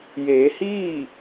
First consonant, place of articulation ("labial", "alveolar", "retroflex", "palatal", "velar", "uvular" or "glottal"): palatal